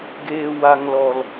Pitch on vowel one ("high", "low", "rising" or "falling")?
low